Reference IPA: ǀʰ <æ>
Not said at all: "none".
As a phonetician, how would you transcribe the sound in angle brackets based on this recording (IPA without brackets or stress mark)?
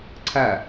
æ